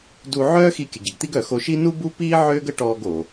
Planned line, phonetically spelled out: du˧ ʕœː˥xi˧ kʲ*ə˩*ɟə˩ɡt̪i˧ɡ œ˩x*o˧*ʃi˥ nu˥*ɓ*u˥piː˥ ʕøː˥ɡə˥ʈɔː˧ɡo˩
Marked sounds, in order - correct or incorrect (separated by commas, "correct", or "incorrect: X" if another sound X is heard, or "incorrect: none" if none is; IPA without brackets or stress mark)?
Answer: correct, correct, incorrect: b